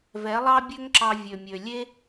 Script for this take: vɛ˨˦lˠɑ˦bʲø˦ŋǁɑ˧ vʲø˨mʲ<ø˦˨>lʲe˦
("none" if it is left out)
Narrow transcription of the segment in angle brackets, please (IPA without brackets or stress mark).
ø˨